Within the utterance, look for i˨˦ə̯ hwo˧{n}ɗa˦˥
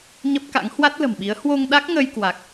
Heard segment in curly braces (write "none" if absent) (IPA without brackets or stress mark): ŋ